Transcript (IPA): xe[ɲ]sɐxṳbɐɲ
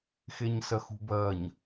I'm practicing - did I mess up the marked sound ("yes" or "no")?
no